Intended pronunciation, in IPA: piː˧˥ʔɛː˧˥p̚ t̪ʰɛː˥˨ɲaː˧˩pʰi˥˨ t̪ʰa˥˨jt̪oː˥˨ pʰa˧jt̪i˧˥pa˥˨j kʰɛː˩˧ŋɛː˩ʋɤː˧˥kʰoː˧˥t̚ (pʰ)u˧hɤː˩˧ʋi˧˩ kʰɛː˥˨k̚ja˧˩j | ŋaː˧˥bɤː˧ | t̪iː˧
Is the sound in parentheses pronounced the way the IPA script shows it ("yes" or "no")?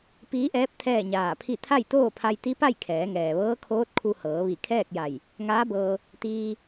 no